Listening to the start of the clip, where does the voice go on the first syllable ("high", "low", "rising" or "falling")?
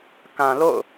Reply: low